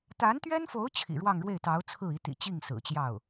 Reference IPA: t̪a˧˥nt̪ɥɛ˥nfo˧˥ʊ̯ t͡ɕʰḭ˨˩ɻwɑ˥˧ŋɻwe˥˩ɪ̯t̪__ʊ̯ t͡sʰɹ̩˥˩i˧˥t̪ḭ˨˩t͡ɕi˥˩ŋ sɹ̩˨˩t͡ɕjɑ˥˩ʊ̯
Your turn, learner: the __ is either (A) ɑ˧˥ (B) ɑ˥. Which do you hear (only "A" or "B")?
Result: A